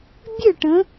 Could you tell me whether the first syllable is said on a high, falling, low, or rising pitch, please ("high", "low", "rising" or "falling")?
falling